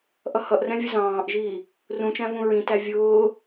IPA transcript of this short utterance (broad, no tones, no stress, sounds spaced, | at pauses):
ʔ ʌ h ʌ ʔ r ɛ̃ vʲ ə z ɑ̃ː ʔ ʒ iː | r ũ t͡ʃ æ̃ v ũ ɹ ĩ t æ vʲ ʊː